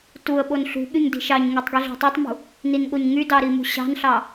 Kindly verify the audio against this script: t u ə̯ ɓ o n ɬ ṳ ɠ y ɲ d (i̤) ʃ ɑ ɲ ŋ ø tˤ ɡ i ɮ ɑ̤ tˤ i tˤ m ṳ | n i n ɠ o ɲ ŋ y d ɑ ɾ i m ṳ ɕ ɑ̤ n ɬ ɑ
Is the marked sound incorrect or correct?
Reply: correct